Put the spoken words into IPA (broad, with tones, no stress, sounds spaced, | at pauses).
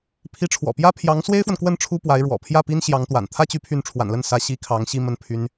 pʰ i˧˥ ʈ͡ʂʰ w ɔ̰˨˩ p j ä˥ pʰ j ɑ˧˥ ŋ s w e˥ ɪ̯ f w ə˨ n k w ə˥˩ n ʈ͡ʂʰ u˥ p w a˧˥ ɪ̯ ɻ w ɔ̰˨˩ pʰ j ä˥˩ p i˥ n ɕ j ɑ˧˥ ŋ t̪ w a̰˨˩ n t̪ʰ ä˥ t͡ɕ y˧˥ pʰ y˥˩ n ʈ͡ʂʰ w a̰˨˩ n l ə˥˩ n s ä˧˥ ɕ i˧˥ kʰ ɑ˧˥ ŋ ɕ i˥˧ m ə˥˩ n pʰ y˥ n